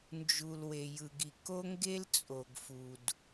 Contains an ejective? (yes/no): yes